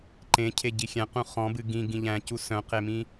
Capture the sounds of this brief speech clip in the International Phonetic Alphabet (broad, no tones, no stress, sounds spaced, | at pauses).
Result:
ǃ ẽ cʰ e ɟ i xʲ æ̃ q ũ χ ɔ̃ b ɨ ɡ ĩ ɡ ĩ ʎ æ̃ c u s œ̃ q e m ĩ